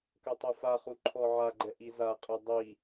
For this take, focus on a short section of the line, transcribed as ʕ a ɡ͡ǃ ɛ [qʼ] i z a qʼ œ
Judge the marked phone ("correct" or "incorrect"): incorrect